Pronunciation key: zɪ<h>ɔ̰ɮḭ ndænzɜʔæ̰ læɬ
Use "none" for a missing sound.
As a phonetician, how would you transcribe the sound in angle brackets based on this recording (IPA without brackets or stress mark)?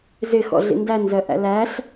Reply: x